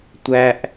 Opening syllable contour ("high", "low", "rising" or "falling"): high